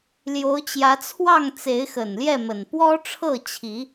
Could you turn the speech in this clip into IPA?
ljo˨˦ʊ̯t͡ɕjä˨˦t͡sʰwɑ˥˨ŋ t͡se˨˦ɪ̯xə˨˩n ljɛ˥˨mə˨˩n pwɔ˦ʈ͡ʂʰɤ˥˨t͡ɕʰi˨˦

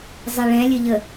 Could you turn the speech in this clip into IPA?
zˤɛɭɛ̃lʲəʎə

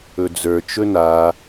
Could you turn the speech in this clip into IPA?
ɵd͡zə˞t͡ʃɵ na

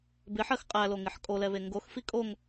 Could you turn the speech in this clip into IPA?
bɪħɜx qʼæloŋɪħ kʼolɛβe ŋɡoxfi kʼoŋ

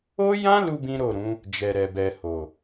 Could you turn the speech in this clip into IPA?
o˦jã˦lu˧ bĩ˦ɾo˦˨ɾũ˨˦ | d͡ʒɛ˧ɾɛ˧bɛ˧ ho˨

